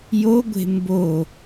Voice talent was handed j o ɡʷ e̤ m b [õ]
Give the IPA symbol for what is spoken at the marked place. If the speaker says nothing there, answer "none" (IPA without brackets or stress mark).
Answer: o